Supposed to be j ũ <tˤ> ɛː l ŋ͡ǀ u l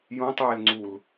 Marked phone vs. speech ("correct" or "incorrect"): correct